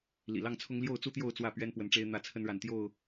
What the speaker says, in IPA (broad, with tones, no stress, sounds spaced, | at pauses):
l ḭ˨˩ l ɑ˥˨ ŋ t͡sʰ ʊ˦ ŋ l j o˥˨ ʊ̯ t͡s u˦ t̪ j o˥˨ ʊ̯ t͡s w ä˥˨ p ɥ ɛ˦ n p w ə˨˦ n ʈ͡ʂ e˦ ɪ̯ n̪ ä˥˨ t͡sʰ ə˦ n ɻ a˨ n t̪ j o˥˨ ʊ̯